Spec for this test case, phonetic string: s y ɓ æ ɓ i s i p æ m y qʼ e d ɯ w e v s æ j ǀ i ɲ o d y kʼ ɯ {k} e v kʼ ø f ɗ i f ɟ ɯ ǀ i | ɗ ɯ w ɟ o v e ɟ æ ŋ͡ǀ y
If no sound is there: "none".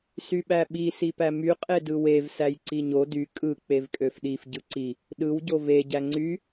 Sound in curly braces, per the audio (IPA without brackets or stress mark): k͡p